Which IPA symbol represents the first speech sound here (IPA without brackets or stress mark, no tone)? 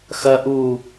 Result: x